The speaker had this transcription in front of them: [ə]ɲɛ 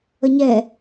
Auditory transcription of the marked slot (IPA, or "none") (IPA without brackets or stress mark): ə